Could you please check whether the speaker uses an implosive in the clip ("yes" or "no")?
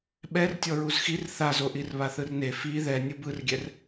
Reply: yes